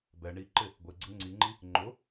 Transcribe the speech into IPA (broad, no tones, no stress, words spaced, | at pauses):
bɛ ɳiǃɪ | ɡʷeɡ͡ǀɪ ŋ͡ǀiŋ͡ǃi | ŋ͡ǃʊ